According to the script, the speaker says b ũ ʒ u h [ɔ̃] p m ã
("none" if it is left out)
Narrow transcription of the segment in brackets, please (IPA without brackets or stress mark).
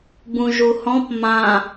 ɔ̃